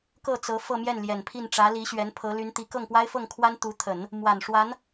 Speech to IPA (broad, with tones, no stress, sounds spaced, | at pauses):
k ɤ˥˩ t͡s ɤ˧˥ f ɤ˥˧ m j ɛ˥˩ n l j ɛ˨˩ n pʰ i˥˩ n ʈ͡ʂ ä˧˥ l i˧˥ ɕ ɥ ɛ˧˥ n pʰ ɤ˧˥ l y˧˥ n t̪ i˧˥ k ɤ˥˩ ŋ p w a˥ ɪ̯ f ɤ˥˩ ŋ kʰ w a˥ n t̪ u˧˥ t̪ʰ ə˨˩˦ n | m w a˨˩ n ʂ w a˧˥ n